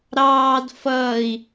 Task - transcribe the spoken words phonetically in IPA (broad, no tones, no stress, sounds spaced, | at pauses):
ɾ ɑː d f ʌː i̯